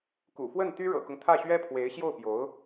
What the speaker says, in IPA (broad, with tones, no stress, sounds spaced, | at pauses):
k ṵ˨˩ f w ə˥˩ n t̪ y˥ ɻ ɤ̰˨˩ k ʊ˦ ŋ t̪ʰ ä˥˩ ɕ ɥ ɛ˥ pʰ w e˧˥ ɪ̯ ɕ j o˥˩ ʊ̯ p j o˧˥ ʊ̯